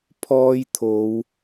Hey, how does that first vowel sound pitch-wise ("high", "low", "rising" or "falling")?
high